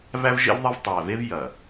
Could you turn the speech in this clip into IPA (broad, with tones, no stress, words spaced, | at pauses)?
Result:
væ˦vʒḛ˦vðˤɐ˦v tˤæ˨ve˦v jɐ˨